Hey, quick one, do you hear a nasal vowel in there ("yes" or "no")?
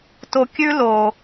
no